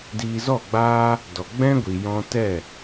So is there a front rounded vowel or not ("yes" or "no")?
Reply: no